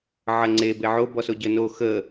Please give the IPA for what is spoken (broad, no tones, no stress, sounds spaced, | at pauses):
ʕ ə ŋ͡ǀ e b e ʕ o b ɔ s o ɟ ə n o x ə